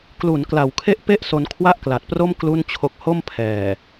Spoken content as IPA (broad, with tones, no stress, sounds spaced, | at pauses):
k l u˩˦ n k l a˩˦ w kʰ e˥˩ ʔ p e˥˩ ʔ s o˧ n kʰ w a˥˩ ʔ k l a˨˩ t̚ p r o˥˩ m k l u˥˩ n t͡ɕʰ o˦˥ k̚ h o˥˩ m pʰ ɛː˨˩